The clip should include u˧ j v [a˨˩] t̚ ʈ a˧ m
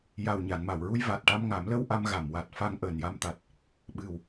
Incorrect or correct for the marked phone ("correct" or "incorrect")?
correct